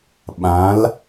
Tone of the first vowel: rising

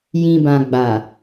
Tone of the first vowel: low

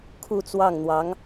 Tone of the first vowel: falling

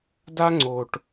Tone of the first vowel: high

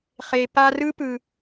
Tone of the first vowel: low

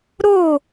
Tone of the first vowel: falling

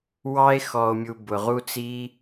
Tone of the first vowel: high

